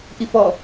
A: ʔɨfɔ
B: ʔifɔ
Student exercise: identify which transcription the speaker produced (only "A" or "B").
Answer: B